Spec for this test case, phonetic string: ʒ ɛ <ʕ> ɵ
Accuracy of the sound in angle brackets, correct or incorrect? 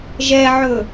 correct